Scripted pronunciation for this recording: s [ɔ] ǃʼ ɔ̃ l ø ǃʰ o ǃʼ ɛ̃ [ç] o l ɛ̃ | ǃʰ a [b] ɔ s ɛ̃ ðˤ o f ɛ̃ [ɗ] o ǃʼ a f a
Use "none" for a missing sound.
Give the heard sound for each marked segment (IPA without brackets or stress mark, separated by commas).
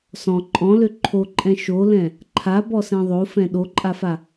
ɔ̃, ʃ, b, ɗ